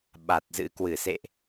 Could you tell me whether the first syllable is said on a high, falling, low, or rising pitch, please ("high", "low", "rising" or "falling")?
low